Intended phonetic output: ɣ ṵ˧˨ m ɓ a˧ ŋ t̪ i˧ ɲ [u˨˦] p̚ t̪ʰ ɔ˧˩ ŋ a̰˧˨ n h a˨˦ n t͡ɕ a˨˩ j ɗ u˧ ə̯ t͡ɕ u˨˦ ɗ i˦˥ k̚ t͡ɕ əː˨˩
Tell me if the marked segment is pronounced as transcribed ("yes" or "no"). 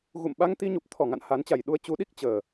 no